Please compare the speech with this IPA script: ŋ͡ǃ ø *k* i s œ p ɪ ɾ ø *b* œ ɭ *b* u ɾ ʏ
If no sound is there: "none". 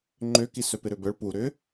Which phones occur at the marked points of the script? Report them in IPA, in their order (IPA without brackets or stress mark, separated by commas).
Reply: k, b, p